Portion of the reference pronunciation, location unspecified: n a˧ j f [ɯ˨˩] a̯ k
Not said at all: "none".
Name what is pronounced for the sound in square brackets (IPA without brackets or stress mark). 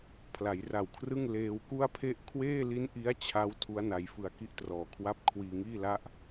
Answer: ɯ˧